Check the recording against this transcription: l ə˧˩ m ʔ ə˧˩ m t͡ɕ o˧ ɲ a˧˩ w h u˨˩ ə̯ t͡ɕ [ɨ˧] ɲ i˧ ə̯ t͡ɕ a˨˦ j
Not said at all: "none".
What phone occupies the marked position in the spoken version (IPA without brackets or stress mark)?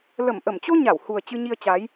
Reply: ɨ˧